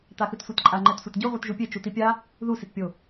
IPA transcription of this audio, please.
t̪ a x ɯ t sʷ e t ǃʼ a ŋ͡ǃ ɛ t sʷ e t ɟ u ʁʷ i t ʒ u pʲ e t͡ʃ u t̪ i pʲ a | ð u s i t pʲ o

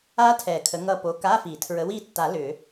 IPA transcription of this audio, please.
a˦˥ tʰ ɛ˨˩ kʰ ə˨˦ ŋ ʌ˦˨ p o˨˦ k a˧˥˧ f i˨˩˦ tʰ ɹ ə˨˦ w i˦˨ tː a˨˩˦ l ʏ˨˩˦

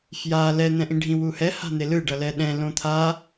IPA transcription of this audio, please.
f j a l ɛ n̪ ɛ̃ ʔ ĩ ɖʱ ĩ w u h ɛ h a̤ n̪ e l ɯ ɖ ʌ l ɛ ɗ ɛ̃ l õ t̪ʰ a

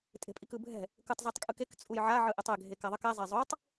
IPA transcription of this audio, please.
tʼ e̤ pʼ i k ɯ bʱ ɛ̤ | k ɯ tˤ z a tˤ kʼ ɯ k e k t͡sʼ u j ʕ a ʕ ɯ ʔ e tˤ ɛ ɡʱ e k a ðˤ ʌ k ɛ zˤ e zˤ o tˤ

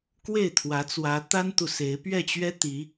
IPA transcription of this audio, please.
k w e˥˨ ɪ̯ t̪ʰ w ä˨˦ t͡s w ä˨˦ t̪ a˦ n t̪ u˨ s e˨˦ ɪ̯ p ɥ ɛ˥˨ t͡ɕ ɥ ɛ˦ t̪ i˨˦

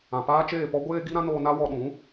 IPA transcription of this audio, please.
ã˨ p aː˦ t͡ʃ eː˦˨ p ɔ˦ ɡʷ eː˦ ɡ i˦ ɾ ã˦ n oː˧ n a˦ w ɔ˧ ɗ ũ˨˦

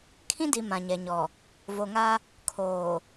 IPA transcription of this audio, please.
kʰ ĩ˦ d i˨ m ã˨ ɲ ɛ˨ ɲ ɔ˨ | v o˨ ŋ a˦ | kʰ oː˨

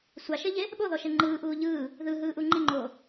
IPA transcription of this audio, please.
sʷ a ʃ e ʎ e | ɓ o ð ɔ ʃ e ŋ͡ǃ ɯː ʔ uː ʎ ɯː | ð ɯ ɦ ɯː ʔ u ŋ͡ǃ i ŋ͡ǃ oː

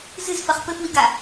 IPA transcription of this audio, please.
z ɨ z f ɐ χ p ɘ f w i ɡ a

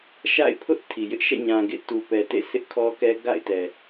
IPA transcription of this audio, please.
ʃ a̰˦˨ ɪ̯ pʰ ʊ˦ ʔ tʰ i˨ j ɪ˦ ʔ ʃ ɛ̰˦˨ ɲ ã˨ ɡ ḛ˦˨ t u˨ p ɛ˨ t ḛ˦˨ s ɪ˦ ʔ kʰ ɔ˦ k ɛ˦ ɡ a̰˦˨ ɪ̯ t ɛ˨

